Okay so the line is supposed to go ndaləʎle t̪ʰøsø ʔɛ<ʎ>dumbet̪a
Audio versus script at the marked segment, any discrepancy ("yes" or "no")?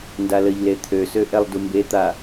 yes